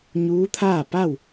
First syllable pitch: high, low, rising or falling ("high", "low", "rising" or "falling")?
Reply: rising